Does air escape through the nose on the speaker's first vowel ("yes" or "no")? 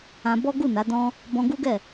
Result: yes